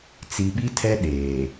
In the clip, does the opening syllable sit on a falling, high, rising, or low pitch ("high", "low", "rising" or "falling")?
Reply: low